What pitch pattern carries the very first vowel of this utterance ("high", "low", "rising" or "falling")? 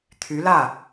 rising